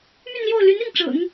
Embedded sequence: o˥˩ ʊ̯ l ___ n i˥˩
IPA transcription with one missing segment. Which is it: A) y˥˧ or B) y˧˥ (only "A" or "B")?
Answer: B